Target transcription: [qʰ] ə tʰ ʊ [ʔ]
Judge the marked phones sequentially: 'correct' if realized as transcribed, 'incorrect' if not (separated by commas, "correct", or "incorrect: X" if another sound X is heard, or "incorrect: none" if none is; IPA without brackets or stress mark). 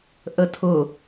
incorrect: ʔ, incorrect: none